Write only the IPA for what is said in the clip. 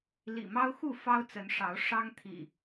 l ḭ˨˩ m ɑ˦ ʊ̯ x u˥˨ f ɑ˦ ʊ̯ t͡s ə˨˦ n ʂ ɑ˨˦ ʊ̯ ʂ ɑ˦ ŋ t̪ʰ ḭ˨˩

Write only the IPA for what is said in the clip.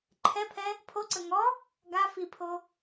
ǃʰ ɛ pʰ ɛ | pʰ o ǀ ə ŋ ɔ | ɡ a f i pʰ o

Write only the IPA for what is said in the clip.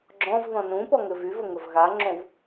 ɡ͡ǁ ɔ̃ v ð ɔ̃ n ũ p ɔ ŋ ɘ v y v ə ŋ ə v ɣ a ŋ͡ǁ õ v

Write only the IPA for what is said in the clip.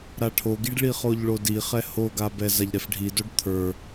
ɾ a ʈʰ o ɡ i ɖ ɭ i χ o ʎ ɭ o d i χ ɛ h o ɡ a b ɛ z a ʎ ɾ ɛ f ɖʱ i d o ɖ t̪ʰ ə˞

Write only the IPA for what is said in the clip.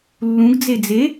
lː ũ ɡ d͡z e d͡z e

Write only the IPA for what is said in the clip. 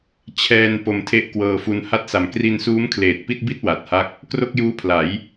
t͡ɕʰ ɛː˧ n p o˧ m tʰ e˥˩ ʔ k w ɤː˧ f u˧ n h a˥˩ t̚ s a˨˩ m k r i˧ n s uː˦˥ m kʰ l eː˨˩ t̚ p i˥˩ t̚ b i˥˩ t̚ w a˨˩ t̚ h a˥˩ k̚ | k r o˥˩ k̚ j uː˦˥ pʰ l a˩˦ j

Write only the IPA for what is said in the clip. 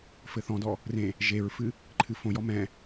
f ɘ θ ɔ̃ d ɔ | r ẽ | ʒ e ɹ f ɨ | ǃʰ ɨ f õ j ɔ m ɛ̃

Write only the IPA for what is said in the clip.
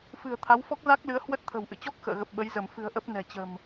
f ɨ̤˨˩ ə̯ t̪ʰ a˨˦ w f ɔ˦˥ k̚ z a˦˥ k̚ l ɨ˨˦ ə̯ h w ə˦˥ t̚ t̪ʰ ə̤˨˩ w ʔ ɨ̰˧˨ t͡ɕ ɔ˦˥ k̚ x ə̰ː˧˨ ɣ ə˨˩ p̚ ɓ ə˨˦ j z ə˧˩ m f ɨ̤˨˩ ə̯ ʔ ə˦˥ p̚ n ɛ̤˨˩ t͡ɕ ə̤˨˩ m

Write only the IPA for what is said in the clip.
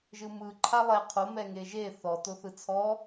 ʒ ɯ m ɯ ǃʰ a lˠ ɛ qʰ o m ɛ ŋ e ʒ e θ ɔ t o θ ɯ t͡sʰ ɔ

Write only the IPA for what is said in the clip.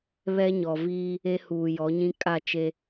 β ɛ˦ ɲ ɔ˨ v iː˦ | e˦ h uː˨ j ɔ˨˦ ɲ ĩ˦ kʼ a˦˨ t͡ʃ e˦

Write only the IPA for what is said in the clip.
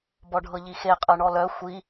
b ɔ ɖʱ ɤ ʎ i x e qʼ ɤ ɳ ɔ l œ xʷ i

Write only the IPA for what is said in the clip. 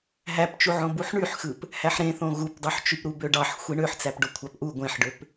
ɦ æ p t͡ʃ u ʕ õ b u ħ ɳ y ħ x ɯ p | h æ ħ ɾ ẽ θ õ ɣ u p dˤ y ħ t͡ʃ y p ɾ u b ø ɖ ɑ ħ xʷ i ɳ ø ħ t͡s æ p ɖ o kʷʰ ɑ p ʔ u ɡʷ ẽ ħ ɖ ø p

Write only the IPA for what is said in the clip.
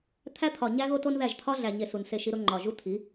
t̪ʰ æ˦ t̪ʰ ɒ˨ ɲ æ˦ ɣ o˦ t o˦ n ð æ˦˨ ʒ t̪ʰ ɒ˦ ɮ æ˨ ɲ e˨ s u˨ n s e˦˨ ʃ i˦ ɾ o˦ ŋ͡ǃ ɒ˨ ʒ u˦ t̪ʰ i˨˦

